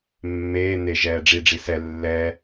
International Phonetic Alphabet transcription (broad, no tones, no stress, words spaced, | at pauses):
mːeː ne ʒɛːɖ͡ʐiɖ͡ʐi sɛ lːɛ